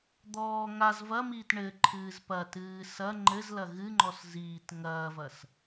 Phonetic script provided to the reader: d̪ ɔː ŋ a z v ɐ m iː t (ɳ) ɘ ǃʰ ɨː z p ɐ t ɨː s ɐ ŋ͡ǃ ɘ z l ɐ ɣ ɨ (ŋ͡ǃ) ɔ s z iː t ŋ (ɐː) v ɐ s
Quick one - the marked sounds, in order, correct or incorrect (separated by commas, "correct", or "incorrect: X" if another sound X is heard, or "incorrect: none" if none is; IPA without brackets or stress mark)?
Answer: correct, correct, correct